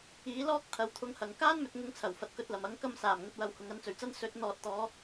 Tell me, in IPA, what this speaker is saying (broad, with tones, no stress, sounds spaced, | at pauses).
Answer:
iː˨˥ l ɔː˥ k̚ t̪ʰ ɐ˨˧ w t̪ʰ ʊ˧ ŋ h ɐ˨ ŋ k aː˥ n m ɵ˨ t̚ ŋ ʊ˨˥ ŋ t͡sʰ ɐ˨˩ w f ɐ˨ t̚ k ɵ˧ t̚ l ɐ˨˩ m ɐ˨˥ ŋ k ɐ˧ m s aː˨˩ m ŋ ɵ˨ t̚ w ɐ˨ w h ʊ˨ ŋ ɐ˨˧ n t͡s ɵ˨˩ ɥ t͡s ɐ˥ n s ɵ˨˥ t̚ n̪ ɔː˨ t̚ t̪ ɔː˨˧